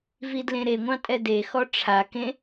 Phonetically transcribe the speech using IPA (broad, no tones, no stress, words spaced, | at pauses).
vidlẽɾeŋʷɑ̃ tʼɛdexɔ ʈ͡ʂʰakẽ